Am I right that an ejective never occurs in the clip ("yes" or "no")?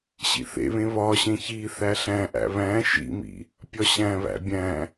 yes